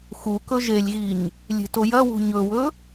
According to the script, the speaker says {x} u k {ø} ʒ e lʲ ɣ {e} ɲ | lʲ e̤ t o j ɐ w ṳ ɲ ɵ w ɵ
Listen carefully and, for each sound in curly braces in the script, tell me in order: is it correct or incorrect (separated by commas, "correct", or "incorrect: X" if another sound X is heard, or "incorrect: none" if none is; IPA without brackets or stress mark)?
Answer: correct, incorrect: ɵ, incorrect: i